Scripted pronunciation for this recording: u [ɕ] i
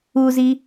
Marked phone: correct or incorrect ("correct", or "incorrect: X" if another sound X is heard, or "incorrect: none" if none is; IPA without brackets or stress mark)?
incorrect: z